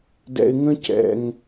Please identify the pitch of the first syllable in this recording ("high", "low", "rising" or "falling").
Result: low